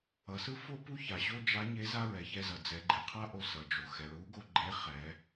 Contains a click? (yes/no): yes